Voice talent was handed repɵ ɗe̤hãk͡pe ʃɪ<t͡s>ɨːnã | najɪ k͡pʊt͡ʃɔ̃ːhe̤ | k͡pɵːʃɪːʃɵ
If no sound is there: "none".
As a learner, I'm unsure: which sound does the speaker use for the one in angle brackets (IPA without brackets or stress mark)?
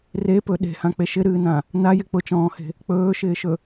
ɾ